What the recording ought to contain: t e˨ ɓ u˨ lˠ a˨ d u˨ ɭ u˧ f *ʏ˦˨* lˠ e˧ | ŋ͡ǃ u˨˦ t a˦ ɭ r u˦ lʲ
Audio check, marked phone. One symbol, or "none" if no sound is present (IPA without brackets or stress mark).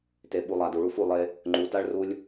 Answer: u˦˨